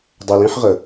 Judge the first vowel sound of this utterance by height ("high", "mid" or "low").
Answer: mid